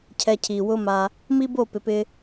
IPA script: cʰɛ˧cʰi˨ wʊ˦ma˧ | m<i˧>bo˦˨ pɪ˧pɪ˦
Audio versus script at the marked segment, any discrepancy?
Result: yes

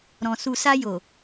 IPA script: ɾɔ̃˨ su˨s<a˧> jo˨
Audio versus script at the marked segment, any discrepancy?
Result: no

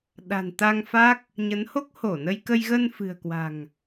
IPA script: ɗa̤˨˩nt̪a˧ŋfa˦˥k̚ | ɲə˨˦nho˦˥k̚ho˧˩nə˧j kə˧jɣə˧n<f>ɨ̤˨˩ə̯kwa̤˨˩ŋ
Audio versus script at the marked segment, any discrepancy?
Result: no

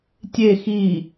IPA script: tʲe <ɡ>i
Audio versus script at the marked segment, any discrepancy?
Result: yes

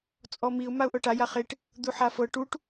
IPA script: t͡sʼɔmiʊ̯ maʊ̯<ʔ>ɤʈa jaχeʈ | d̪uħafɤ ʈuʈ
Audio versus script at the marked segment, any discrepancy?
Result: no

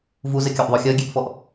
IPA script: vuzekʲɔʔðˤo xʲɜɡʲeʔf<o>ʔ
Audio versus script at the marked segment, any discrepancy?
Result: yes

